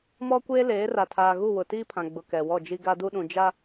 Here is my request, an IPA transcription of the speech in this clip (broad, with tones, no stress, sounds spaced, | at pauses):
m ɔ˦ kʷ eː˦ l eː˨˦ r a˨ tʰ aː˨ ɣ u˦˨ w ʊ˨ t iː˦ pʰ ã˨ ɡ͡b ʊ˨ k ɛ˨ w ɔ˦˨ d͡ʒ i˦ ɡ a˦ d u˦ ɗ ũ˨ d͡ʒ a˦